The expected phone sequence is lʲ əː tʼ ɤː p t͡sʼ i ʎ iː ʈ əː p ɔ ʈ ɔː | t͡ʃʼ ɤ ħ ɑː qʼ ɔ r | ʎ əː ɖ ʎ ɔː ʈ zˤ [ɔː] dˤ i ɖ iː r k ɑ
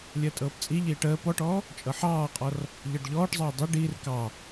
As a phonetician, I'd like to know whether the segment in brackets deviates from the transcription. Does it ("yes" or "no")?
yes